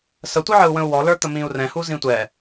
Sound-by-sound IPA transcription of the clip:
sətʷəʕəu̯ wə̃u̯wɔlə˞t̪ə mĩu̯rɛ̃hu zĩtʷɛ

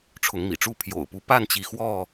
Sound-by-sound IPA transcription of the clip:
ʈ͡ʂʰʊ˨˦ŋmḭ˨˩ʈ͡ʂu˥˨ pʰjo̰˨˩ʊ̯pu˦ pa˥˨nt͡ɕi˨˦ xwɔ˥˨

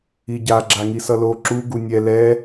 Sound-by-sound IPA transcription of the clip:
iɟa ɡ͡ǁaŋisʌlo ǁu ɡunʲɛ lɛ

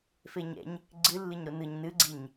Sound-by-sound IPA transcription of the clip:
feɲɛ̰ɲ | ɡ͡ǀɨlːɨɲ ɾonɯɲ nɨɡ͡ǀiɲ

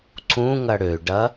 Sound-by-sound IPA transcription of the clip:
ǀũ ŋɐɽøɖɐ

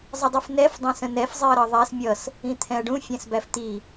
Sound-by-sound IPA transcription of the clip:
zˤədˤifnɛf dˤɛ̃sə̃nɛf zˤiɐ̯ɾʌðˤæs mʲʌs | ĩt̪ʰɛ̃ɐ̯ɖũ fʲæ̃sbæft̪i

